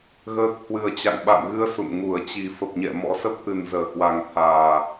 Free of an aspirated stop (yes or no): no